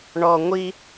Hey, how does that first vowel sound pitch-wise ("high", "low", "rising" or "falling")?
low